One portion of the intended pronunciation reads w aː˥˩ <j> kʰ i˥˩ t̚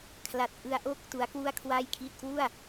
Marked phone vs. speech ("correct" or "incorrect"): correct